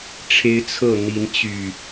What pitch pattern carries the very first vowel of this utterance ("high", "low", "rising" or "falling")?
high